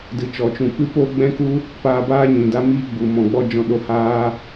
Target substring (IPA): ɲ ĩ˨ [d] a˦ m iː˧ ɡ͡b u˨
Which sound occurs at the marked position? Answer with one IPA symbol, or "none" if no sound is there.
d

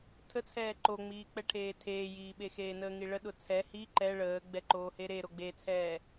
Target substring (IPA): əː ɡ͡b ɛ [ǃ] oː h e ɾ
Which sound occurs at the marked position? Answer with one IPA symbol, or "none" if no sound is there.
ǃ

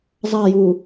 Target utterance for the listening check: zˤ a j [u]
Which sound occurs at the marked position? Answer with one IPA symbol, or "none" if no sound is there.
u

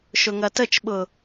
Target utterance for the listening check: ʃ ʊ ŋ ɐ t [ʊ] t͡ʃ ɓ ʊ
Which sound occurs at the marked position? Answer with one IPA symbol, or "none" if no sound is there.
ə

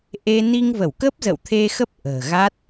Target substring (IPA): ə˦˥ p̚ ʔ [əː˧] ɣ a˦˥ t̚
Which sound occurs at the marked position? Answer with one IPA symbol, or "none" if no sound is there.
ə̤ː˨˩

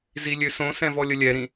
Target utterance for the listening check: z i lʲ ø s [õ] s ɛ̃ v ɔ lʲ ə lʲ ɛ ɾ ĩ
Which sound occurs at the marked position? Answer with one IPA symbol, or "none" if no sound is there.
õ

